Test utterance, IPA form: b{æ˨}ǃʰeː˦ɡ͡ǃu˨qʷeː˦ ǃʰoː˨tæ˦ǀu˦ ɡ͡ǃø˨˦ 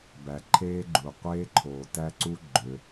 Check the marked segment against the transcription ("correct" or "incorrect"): correct